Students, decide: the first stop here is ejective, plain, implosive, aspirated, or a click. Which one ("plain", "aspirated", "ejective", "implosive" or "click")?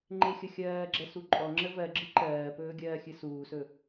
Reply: click